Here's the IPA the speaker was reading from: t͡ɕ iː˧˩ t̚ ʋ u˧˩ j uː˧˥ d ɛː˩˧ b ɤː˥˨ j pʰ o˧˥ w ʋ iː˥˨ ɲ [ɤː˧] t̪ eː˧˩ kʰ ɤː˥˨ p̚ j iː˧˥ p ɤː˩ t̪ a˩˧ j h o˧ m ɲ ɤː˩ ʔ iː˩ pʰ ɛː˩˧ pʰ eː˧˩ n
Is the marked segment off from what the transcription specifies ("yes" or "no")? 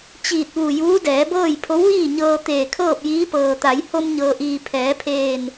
no